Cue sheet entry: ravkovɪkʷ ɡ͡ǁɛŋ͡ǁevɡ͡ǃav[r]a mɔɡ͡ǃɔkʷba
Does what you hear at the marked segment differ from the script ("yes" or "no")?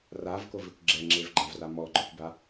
no